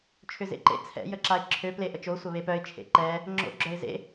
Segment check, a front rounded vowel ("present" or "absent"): present